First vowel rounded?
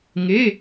no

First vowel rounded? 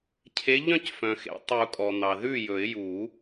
no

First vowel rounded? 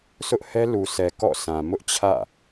yes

